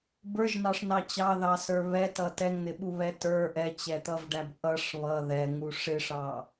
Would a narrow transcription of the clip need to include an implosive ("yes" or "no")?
yes